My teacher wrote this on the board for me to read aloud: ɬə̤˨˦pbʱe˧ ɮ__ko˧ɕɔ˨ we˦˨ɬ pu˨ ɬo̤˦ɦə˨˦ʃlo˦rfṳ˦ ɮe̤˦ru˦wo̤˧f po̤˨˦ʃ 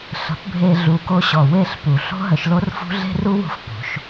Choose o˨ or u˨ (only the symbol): u˨